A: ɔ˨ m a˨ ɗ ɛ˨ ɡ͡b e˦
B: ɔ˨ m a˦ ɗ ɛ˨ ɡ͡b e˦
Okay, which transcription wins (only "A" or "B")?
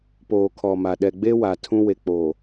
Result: A